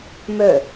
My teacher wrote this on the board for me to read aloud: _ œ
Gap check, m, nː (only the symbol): m